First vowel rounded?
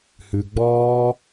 yes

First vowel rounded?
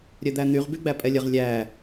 yes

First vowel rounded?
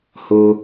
yes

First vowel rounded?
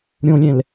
yes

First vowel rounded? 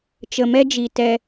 no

